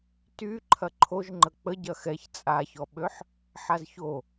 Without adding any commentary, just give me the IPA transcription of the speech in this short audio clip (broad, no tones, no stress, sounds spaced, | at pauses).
t y ǃʰ ɐ ǃʰ o ʒ ŋ͡ǃ ə k͡p ə ɟ ɐ x ɛ ç t͡sʼ a ç ɔ ɓ ø ħ | ħ a z ç o